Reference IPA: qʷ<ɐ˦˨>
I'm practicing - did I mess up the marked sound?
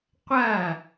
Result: no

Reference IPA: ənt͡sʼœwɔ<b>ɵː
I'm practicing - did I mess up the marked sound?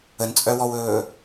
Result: yes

